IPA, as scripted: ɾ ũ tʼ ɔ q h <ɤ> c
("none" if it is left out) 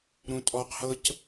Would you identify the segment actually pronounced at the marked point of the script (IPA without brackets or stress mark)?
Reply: ɤ